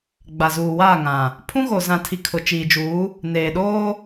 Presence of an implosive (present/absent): present